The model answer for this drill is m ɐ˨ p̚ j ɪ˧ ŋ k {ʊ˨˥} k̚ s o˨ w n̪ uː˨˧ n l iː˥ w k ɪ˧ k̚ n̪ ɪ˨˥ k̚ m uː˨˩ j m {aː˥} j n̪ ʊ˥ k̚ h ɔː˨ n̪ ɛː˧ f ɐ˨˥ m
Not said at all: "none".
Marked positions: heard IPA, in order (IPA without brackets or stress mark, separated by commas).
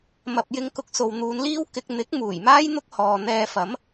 ʊ˨, aː˥